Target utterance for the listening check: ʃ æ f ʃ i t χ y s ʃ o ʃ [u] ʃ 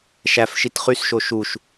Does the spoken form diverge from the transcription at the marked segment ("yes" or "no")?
no